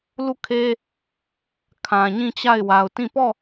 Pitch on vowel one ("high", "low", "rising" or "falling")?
falling